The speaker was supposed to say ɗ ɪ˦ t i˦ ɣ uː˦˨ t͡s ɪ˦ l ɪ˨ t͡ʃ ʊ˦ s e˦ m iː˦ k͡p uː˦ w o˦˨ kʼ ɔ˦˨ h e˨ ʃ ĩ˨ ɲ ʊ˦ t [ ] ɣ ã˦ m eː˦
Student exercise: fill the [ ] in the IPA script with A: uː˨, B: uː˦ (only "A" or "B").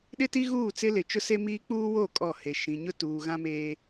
A